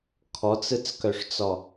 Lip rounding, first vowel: rounded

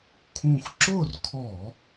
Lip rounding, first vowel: rounded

